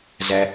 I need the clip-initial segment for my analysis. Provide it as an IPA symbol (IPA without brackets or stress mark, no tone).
z